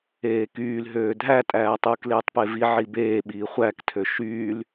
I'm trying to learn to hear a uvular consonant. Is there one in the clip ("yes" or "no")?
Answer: yes